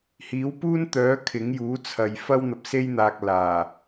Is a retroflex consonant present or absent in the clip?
absent